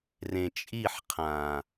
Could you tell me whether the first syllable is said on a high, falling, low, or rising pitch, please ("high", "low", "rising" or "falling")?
low